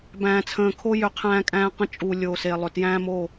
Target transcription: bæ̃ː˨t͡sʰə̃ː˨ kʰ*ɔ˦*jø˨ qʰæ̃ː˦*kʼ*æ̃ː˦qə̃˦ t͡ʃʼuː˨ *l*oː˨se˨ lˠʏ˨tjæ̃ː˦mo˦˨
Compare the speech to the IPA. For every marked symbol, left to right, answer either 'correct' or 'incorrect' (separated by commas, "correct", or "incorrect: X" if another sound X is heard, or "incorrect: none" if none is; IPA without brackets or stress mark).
incorrect: o˦, correct, incorrect: lʲ